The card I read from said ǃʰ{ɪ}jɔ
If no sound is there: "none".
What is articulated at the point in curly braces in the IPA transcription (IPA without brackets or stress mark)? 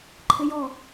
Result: ɪ